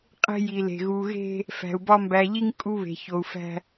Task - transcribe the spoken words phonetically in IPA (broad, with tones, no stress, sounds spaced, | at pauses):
qʼ e̤˦ j i˨ l e̤˨ ɣ u˨ ɣ e̤˦ | f æ̤˨ u̯ b ɒ˦ m b æ˨ ʎ i˦ ŋ kʼ u˦ β e̤˨ ç o˨ u̯ f æ̤˦